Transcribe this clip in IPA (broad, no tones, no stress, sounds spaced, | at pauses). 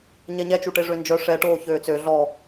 ɲ ɛ ɲ ɛ t͡ʃ u ʈ e ʐ ø n d͡ʒ œ ʂ ɛ ʈ oː ç øː t͡s ø ɮ ɔ